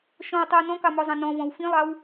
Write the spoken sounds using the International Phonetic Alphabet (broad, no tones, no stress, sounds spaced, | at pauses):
ʃ ɔ̃ w tˤ i w n ɔ̃ k ɑ m ɔ zˤ ɑ̃ n ɔ̃ v ɔ̃ w f ĩ lˠ ɑ w